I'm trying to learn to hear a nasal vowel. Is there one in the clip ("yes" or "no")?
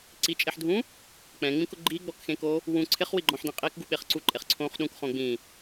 yes